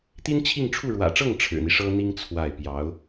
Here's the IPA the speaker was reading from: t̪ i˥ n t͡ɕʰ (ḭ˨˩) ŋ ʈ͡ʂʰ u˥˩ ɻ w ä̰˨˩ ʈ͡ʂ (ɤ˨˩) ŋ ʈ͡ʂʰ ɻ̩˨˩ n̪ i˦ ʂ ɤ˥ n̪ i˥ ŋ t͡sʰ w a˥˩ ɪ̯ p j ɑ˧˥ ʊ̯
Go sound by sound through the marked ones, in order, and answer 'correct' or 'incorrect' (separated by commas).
incorrect, incorrect